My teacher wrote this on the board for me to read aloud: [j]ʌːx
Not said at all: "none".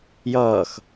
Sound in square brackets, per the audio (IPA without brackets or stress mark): j